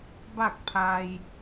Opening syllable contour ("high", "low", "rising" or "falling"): falling